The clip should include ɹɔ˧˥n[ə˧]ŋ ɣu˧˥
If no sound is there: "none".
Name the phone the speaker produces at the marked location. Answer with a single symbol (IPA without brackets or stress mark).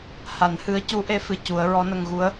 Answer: ə˧